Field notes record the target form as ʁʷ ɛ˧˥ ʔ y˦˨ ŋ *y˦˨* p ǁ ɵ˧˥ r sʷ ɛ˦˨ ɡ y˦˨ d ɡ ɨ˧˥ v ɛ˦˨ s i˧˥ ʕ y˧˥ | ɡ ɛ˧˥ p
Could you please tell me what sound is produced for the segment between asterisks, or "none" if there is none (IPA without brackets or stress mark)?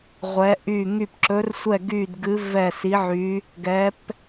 y˦˨